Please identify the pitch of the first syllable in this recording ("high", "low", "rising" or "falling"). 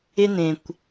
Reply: high